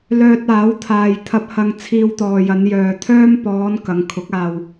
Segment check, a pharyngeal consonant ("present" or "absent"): absent